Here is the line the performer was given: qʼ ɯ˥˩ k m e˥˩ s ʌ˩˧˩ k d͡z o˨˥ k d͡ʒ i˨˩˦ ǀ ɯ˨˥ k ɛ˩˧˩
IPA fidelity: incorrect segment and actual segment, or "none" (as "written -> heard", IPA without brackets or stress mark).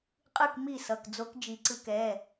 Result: e˥˩ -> i˥˩